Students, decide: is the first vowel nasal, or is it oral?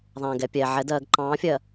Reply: nasal